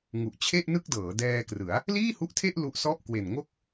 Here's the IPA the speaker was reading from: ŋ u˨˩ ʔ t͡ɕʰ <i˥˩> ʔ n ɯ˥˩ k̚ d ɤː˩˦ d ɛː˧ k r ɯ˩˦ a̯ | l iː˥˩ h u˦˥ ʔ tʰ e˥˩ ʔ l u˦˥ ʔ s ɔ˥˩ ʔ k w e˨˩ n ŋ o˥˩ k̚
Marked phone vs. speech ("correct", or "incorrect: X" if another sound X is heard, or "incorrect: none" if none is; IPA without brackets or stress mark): incorrect: e˥˩